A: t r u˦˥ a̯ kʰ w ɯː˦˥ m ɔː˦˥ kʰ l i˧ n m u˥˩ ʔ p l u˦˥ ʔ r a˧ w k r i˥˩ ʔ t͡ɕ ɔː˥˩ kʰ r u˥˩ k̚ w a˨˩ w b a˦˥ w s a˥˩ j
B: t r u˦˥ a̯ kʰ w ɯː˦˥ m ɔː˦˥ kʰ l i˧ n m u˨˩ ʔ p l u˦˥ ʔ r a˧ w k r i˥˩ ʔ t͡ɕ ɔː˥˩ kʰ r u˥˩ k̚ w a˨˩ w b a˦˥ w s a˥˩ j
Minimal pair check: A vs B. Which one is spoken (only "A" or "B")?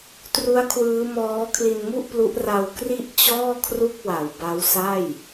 A